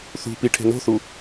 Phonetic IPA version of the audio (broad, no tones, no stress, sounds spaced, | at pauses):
θ ṳ p i ʈʰ e̤ n o̤ θ u